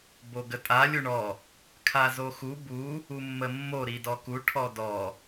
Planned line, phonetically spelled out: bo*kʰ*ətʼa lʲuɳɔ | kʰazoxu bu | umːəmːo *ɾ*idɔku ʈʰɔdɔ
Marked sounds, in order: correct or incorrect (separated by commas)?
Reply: incorrect, correct